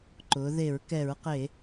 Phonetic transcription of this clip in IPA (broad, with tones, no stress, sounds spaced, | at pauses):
ǃ ʊ˩˧ ð e˧˩˧ ɹ k ɛ˧˩˧ ɹ q e˧˩˧